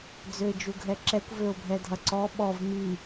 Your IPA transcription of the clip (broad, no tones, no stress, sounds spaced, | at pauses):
d͡z ø ɪ̯ d͡ʒ u ɡʱ ɛ ǁ ɛ kʷ v ø ʊ̯ bʱ ɛ dʱ ɐ ǀ ɔ ɓ ɔ v m i